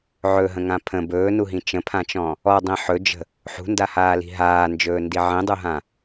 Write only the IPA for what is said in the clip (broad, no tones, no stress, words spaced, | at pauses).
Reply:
ʕɵɦə̃ŋã pʰə̃ bɵːnuɦĩ t͡ʃə̃pʰãt͡ʃɔ̃ | ɔdˤĩ ħɵd͡ʒə̤ | ħṳndahaːli̤ ɦaːnd͡ʒɵːndi ʕĩdˤuɦã